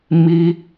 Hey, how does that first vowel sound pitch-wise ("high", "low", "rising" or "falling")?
high